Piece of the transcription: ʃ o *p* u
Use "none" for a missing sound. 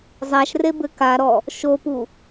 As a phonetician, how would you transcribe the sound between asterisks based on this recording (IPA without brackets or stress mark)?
p